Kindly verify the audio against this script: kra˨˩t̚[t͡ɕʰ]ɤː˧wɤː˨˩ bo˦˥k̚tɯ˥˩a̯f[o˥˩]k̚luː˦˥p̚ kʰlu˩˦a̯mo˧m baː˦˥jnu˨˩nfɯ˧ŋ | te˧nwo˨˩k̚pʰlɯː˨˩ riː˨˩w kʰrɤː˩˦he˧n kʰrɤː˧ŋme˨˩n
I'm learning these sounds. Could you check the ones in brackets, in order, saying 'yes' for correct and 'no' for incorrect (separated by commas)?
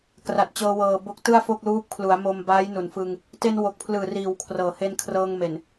no, yes